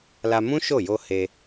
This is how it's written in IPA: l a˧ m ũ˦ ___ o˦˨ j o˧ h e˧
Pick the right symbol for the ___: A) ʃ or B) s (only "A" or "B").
A